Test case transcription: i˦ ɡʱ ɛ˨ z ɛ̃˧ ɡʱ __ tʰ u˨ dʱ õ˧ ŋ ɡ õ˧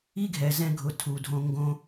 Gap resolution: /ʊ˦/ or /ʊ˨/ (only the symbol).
ʊ˨